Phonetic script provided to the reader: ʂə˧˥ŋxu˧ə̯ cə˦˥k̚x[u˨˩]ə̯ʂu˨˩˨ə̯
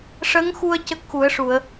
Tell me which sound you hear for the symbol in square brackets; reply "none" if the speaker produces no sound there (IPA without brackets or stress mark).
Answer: u˨˩˦